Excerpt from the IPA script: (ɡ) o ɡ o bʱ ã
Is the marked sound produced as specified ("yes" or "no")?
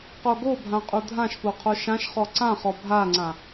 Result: no